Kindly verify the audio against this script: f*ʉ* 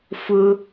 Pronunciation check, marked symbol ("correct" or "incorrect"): incorrect